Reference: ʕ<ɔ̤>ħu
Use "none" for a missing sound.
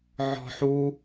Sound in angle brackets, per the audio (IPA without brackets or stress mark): ɔ̤